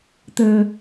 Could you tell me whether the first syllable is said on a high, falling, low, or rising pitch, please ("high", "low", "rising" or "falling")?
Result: low